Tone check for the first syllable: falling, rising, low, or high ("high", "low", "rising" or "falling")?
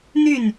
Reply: falling